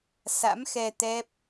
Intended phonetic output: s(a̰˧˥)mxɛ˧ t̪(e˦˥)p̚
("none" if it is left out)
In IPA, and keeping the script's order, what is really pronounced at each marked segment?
a̰˧˥, ɛ˦˥

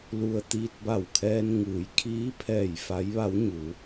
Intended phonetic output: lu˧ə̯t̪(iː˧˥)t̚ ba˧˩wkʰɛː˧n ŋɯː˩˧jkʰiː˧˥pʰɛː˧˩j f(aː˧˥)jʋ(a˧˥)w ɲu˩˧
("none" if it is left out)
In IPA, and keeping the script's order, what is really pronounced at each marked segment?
iː˧, a˧˥, a˧˥

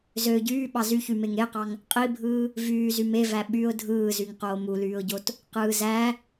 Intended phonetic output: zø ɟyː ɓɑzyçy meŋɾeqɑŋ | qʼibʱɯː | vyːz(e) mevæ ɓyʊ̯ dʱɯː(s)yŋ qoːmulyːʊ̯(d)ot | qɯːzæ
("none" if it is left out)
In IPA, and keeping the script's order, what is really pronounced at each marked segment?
y, z, ɟ

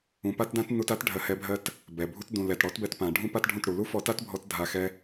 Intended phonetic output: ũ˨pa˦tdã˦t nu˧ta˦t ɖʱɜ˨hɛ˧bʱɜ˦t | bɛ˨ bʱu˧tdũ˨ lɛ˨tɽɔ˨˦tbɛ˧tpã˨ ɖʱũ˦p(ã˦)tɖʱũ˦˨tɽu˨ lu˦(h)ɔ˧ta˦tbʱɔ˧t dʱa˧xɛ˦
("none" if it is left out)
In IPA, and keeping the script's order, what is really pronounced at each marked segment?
a˦, f

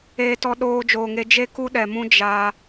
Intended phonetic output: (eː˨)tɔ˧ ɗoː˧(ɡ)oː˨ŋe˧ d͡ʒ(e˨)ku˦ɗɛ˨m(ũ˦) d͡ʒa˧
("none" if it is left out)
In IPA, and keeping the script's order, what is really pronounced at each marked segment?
eː˧, d͡ʒ, e˦, ũ˦

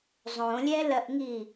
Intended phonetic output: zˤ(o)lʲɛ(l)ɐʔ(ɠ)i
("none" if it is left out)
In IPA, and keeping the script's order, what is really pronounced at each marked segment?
õ, l, ŋ

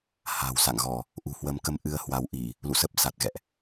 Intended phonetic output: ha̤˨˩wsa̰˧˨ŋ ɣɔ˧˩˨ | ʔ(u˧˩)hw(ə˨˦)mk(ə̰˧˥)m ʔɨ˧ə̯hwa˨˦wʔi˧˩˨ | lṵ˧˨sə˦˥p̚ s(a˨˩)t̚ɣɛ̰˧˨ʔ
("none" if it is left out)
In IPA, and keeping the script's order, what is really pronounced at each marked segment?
ṳ˨˩, ə˨˦, ə˧, a˨˩

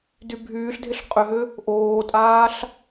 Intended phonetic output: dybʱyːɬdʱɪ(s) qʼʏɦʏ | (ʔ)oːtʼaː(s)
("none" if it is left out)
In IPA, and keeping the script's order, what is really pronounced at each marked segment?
ɬ, ʔ, ɬ

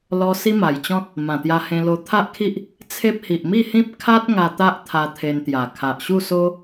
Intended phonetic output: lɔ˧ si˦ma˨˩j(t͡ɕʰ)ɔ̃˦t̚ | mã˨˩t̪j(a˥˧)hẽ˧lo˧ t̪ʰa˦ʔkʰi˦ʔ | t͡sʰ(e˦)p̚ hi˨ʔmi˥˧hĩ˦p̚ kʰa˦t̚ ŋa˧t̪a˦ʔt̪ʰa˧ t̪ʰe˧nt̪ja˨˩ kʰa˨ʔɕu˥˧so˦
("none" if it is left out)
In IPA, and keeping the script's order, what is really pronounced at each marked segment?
t͡ɕ, a˧, e˦

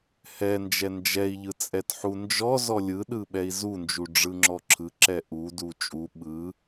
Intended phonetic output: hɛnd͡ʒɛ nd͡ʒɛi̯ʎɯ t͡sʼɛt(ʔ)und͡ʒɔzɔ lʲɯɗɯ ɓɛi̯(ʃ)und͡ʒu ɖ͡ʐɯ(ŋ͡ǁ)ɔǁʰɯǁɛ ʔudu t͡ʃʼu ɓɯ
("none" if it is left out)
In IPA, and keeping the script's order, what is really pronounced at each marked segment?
ħ, z, ŋ͡ǁ

